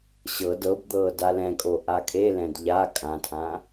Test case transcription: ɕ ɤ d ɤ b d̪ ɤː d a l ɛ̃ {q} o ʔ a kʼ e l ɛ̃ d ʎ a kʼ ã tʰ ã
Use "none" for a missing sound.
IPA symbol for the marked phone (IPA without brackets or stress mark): kʼ